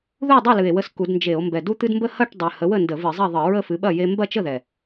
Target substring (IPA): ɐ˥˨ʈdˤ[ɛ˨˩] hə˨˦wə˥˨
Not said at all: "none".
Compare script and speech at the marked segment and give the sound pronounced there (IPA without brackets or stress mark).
ɨ˨˩